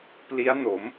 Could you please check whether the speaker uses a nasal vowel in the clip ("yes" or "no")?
no